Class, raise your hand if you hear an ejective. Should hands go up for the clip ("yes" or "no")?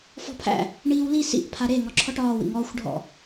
no